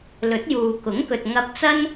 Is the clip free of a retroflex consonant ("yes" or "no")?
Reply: yes